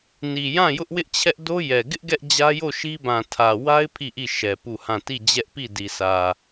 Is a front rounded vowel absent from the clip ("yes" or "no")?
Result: yes